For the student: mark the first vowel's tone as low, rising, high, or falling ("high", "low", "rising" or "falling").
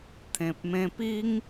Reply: low